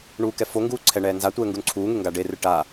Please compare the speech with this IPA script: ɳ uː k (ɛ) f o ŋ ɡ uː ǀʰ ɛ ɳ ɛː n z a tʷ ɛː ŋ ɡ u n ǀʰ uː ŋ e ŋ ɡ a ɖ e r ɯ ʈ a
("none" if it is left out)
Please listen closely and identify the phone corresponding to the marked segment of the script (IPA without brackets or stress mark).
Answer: ɛ